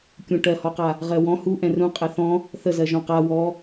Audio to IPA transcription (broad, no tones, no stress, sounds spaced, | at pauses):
kʲ ũ ʈ ɜ h ɔ q a | ʁ ɜ w ɔ̃ h u ʔ ɛ̃ r ũ qʼ ɛ θ ɔ̃ | θ ə z ɜ ʒ ɔ̃ q a w ɔ